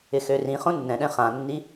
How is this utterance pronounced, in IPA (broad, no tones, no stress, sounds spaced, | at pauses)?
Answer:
ɪ x ø r ĩ χ õ nː ɛ̃ ɗ ɛ̃ χ ã nː i